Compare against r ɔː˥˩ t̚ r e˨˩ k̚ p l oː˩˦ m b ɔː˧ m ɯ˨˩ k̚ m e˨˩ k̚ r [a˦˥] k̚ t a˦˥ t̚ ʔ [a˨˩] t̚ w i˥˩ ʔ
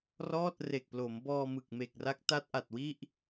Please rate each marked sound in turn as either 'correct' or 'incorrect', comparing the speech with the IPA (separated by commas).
correct, correct